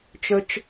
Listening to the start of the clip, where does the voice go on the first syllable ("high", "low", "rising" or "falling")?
high